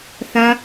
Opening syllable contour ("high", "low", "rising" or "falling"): high